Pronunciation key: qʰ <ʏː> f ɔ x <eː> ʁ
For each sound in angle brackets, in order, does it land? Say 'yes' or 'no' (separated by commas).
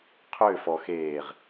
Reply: yes, yes